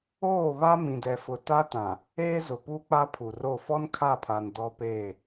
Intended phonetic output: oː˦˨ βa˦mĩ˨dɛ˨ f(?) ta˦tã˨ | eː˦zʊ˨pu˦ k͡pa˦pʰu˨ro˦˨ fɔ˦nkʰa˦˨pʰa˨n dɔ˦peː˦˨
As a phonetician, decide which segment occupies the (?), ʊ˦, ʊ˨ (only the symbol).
ʊ˨